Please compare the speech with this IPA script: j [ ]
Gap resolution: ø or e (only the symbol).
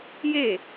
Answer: e